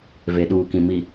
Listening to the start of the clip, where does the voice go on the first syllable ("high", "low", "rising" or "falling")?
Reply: low